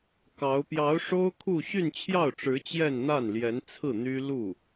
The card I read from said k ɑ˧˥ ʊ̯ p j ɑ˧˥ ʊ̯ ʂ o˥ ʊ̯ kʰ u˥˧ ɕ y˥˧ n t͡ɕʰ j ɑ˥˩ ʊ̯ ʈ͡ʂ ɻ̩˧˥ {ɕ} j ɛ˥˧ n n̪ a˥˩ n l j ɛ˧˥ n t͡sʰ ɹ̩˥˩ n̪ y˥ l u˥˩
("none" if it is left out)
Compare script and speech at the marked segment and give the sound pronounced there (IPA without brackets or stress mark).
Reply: t͡ɕ